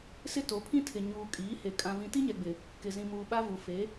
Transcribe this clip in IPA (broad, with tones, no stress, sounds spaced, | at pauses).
s ɪ˦ t o˨˦ pʰ ĩ˦ tʰ ɪ˨ ɲ uː˨ kʼ iː˨˦ h e˨ kʼ ã˦ v ĩ˦ t i˦ ɲ ɛ˨ ɡ͡b ɪ˨ | k ɪ˨ z ĩ˨ m uː˨ ɓ a˦ v u˨ f e˨˦